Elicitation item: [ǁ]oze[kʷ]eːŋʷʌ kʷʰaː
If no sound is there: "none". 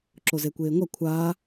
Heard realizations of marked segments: ǁ, kʷ

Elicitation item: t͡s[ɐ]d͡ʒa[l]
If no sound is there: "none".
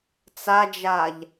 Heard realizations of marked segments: a, ʎ

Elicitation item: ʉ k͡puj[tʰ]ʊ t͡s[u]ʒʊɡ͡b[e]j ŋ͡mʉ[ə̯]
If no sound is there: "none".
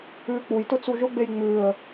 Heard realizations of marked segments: t, u, e, ə̯

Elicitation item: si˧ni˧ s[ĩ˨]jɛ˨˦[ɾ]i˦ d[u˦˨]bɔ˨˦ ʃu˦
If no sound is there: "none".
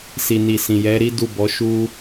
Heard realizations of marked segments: ĩ˨, ɾ, u˦˨

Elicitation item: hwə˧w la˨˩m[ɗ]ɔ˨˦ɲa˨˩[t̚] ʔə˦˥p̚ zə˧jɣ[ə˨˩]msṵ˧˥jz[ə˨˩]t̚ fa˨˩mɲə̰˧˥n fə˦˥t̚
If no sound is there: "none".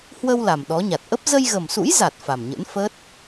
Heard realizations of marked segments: ɗ, t̚, ə˨˩, a˨˩

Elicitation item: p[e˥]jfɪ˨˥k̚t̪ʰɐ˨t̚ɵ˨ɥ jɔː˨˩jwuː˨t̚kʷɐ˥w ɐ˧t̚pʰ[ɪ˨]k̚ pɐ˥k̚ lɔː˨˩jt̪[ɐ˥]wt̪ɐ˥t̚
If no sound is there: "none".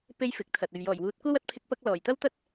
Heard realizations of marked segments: e˥, ɪ˥, ɐ˥

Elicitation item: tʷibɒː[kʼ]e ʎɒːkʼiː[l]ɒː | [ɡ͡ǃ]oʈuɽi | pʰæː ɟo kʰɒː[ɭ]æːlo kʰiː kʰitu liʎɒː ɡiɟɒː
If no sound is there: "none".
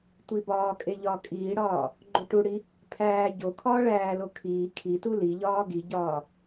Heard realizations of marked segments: kʼ, ɽ, ɡ͡ǃ, ɭ

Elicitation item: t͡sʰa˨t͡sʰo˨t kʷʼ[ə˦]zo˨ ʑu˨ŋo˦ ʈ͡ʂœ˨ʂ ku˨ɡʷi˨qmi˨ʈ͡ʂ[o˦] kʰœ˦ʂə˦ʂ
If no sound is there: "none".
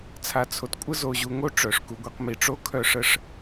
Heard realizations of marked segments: ə˦, o˦

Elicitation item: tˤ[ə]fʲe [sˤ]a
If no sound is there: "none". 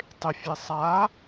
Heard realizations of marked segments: ɪ, sˤ

